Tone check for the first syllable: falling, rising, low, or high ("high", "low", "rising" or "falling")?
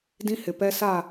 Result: high